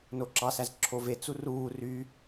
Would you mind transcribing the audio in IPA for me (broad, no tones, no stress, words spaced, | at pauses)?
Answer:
noǁɑsæz ǁʰovet͡su ruː ry